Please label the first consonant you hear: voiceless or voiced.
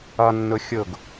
voiced